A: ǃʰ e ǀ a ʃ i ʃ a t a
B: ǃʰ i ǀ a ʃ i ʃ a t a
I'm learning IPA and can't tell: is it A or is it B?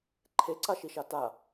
A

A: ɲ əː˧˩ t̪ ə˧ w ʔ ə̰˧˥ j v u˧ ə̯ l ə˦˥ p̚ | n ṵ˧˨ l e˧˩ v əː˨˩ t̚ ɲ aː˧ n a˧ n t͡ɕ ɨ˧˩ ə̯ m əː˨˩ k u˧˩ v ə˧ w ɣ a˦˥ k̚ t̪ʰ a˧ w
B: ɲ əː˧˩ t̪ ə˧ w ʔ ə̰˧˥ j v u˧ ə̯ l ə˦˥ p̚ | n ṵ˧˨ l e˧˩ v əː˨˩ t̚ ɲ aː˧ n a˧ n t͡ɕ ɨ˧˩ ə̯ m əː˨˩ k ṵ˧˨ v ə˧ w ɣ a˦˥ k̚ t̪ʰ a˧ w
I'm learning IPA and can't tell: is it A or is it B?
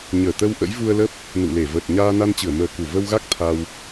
A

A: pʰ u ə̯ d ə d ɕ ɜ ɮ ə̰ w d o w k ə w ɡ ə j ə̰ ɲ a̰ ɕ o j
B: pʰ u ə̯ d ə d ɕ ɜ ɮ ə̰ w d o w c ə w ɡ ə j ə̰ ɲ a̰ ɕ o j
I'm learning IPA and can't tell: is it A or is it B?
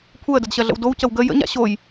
B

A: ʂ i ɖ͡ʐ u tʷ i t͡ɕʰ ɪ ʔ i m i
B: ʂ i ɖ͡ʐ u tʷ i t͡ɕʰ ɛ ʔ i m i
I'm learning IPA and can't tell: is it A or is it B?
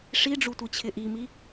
A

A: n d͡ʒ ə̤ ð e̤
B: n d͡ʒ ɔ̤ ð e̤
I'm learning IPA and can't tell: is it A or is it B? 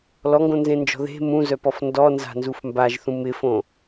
B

